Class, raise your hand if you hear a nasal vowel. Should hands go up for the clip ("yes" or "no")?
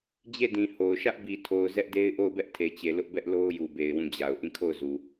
yes